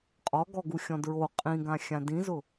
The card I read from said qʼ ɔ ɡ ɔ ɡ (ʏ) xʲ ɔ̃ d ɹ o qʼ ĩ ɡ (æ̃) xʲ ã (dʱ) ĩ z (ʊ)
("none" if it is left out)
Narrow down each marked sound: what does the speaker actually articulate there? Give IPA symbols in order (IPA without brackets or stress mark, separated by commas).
u, ã, d, ʊ